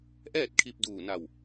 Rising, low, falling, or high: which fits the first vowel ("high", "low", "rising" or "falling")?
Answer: falling